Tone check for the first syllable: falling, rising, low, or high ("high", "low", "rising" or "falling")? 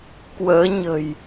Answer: rising